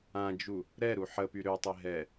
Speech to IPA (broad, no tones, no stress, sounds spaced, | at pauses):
ã d͡ʒ u | ɾ ɛ ɾ u ħ ə p y ɾ ø tˤ e ɦ ɛ